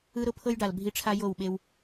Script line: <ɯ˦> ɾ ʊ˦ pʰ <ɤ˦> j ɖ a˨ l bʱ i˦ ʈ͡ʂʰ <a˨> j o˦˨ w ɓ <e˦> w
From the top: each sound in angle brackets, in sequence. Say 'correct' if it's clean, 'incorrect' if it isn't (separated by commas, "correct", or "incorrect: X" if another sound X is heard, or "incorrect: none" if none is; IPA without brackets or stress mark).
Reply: correct, correct, incorrect: a˦, correct